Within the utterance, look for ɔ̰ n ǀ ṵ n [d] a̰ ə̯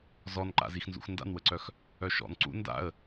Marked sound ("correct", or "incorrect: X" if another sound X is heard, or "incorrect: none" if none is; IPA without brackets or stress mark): correct